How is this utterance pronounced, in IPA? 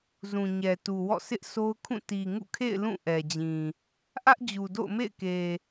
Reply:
zũ˨ɲɛ˨tu˨wɔ̰˦˨ sɪ˦ʔso˦ʊ̯kʰũ˦˨ ti˨ŋṵ˦˨kʰḛ˦˨ɪ̯ lũ˦˨ʔɛ˨d͡ʑĩ˨ | ʔä˦ʔd͡ʑu˨do̰˦˨ʊ̯ mḛ˦˨ɪ̯ke˨

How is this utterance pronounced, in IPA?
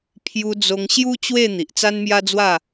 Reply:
pʰju˧d͡zo˧ŋ ɕju˦ t͡ɕwe˥˧ n̪i˨ʔt͡sa˦nmja˦d͡zwa˥˧

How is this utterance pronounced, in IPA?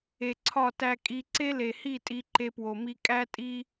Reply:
e˨ǀʰɒ˦˨tæ˧kʼi˧ ǀe˦le˨hi˦˨ tʼi˧ǃe˧pwo˨mi˧ kʼæ˦tʼi˦

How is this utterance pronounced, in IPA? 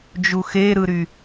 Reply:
d͡ʒuxeɾɯɾy

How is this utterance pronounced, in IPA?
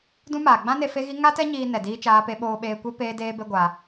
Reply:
dũ˦maː˨ ɡ͡bã˦ne˧ fe˦ɣi˦ ŋa˦tɛ˦ ɲiː˧nɛ˨ diː˦t͡ʃaː˦pe˦ ɓoː˧ɓeː˧kʷe˦ peː˦deː˦be˦ ɡʷa˧

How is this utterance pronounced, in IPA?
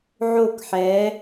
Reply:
ʕo˦˨kħɛ˨˦

